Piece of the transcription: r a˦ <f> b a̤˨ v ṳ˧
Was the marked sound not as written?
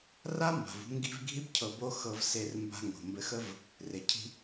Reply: yes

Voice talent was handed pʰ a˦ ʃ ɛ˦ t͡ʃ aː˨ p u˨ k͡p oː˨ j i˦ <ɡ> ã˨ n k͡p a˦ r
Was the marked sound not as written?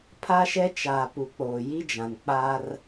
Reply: yes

